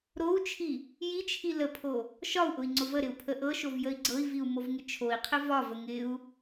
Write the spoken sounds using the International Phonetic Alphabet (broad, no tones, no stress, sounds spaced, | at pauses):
ɾ o u̯ t͡ʃʰ i | j i t͡ʃʰ i l ə pʰ o | ʃ ɒ u̯ ʔ ʊ i̯ ŋ͡ǀ ʊ v ə ɾ ɪ u̯ pʰ ə ʔ ɤ ʃ o v j ə i̯ ɡ͡ǀ ɤ i̯ v i u̯ m o v ŋ ɪ t͡ʃʰ o i̯ qʰ ɪ v ɒ v ə ŋ ɪ u̯